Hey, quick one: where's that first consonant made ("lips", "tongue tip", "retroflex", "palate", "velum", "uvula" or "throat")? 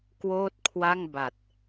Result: velum